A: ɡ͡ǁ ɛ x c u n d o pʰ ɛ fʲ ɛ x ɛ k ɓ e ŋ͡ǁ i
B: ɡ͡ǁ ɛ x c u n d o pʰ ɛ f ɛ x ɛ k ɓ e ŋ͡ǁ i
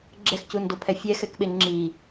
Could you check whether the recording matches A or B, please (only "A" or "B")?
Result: A